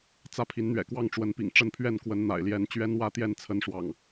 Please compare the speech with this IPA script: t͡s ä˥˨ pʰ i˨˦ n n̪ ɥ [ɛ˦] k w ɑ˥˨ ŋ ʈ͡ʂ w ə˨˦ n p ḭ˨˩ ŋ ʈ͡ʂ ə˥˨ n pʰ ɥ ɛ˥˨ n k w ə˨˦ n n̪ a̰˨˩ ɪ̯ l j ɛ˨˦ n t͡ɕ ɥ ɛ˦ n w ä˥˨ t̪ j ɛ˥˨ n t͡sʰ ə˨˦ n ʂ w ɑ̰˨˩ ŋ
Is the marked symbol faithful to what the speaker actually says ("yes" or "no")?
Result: no